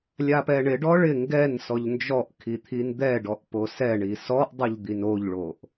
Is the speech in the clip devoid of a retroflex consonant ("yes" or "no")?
no